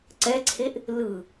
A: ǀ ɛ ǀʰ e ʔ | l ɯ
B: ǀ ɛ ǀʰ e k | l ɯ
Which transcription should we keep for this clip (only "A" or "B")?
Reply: A